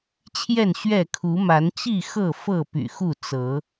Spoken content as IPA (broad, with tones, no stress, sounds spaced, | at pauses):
t͡ɕʰ j ɛ˥˨ n ɕ ɥ ɛ˥˨ kʰ u˨˦ m a˨˦ n t͡ɕ i˥˨ x ɤ˥˨ f ɤ˥˨ p y̰˨˩ x u˥˨ t͡s ɤ˨˦